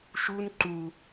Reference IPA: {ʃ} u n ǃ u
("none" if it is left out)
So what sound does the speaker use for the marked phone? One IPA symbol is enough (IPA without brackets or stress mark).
ʃ